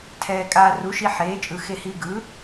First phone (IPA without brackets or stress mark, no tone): tʰ